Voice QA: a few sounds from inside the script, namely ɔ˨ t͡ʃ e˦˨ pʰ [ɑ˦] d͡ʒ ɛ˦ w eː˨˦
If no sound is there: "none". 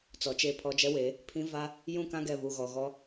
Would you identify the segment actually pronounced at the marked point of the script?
ɔ˦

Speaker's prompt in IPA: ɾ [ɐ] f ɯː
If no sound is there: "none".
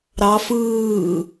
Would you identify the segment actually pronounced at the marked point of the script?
ɑ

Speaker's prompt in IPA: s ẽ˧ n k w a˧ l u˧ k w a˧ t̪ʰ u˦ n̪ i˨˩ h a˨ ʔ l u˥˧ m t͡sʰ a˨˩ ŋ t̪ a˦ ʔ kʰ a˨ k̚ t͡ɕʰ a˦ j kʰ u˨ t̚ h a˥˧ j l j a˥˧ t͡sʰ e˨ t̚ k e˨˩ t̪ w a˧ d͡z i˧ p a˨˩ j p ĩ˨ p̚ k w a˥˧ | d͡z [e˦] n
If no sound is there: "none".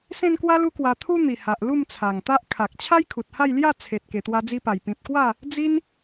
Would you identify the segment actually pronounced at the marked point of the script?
i˦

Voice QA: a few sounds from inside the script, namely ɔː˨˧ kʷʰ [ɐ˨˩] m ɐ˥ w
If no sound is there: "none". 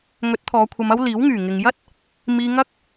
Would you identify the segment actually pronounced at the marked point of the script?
ɐ˧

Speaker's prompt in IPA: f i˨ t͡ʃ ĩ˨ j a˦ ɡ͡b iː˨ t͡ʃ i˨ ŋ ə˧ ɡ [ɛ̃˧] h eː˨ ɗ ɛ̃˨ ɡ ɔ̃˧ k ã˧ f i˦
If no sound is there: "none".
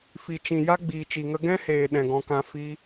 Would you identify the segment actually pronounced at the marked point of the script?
ɛ̃˦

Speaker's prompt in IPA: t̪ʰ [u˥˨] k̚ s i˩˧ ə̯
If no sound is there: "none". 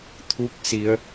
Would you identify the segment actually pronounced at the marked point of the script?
u˧˥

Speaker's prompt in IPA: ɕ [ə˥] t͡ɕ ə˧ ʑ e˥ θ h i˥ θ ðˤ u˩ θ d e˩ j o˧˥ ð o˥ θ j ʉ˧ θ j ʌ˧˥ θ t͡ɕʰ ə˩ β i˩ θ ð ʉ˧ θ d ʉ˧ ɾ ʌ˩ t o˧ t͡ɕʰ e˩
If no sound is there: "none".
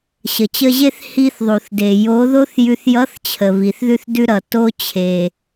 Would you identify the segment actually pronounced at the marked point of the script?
ə˩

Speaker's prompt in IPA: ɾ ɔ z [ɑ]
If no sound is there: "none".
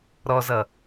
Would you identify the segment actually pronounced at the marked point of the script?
ʌ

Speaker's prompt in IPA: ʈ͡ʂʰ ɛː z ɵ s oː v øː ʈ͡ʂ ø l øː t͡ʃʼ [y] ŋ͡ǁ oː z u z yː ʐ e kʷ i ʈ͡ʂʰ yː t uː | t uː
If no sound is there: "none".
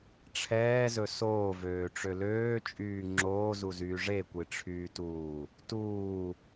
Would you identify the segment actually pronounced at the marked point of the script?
yː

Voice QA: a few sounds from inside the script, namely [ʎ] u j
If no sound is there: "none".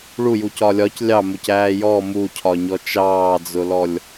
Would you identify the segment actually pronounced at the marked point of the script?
ɭ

